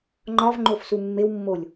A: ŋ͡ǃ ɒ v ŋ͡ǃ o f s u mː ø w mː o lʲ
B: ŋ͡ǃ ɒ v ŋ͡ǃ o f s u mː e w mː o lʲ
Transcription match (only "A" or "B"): B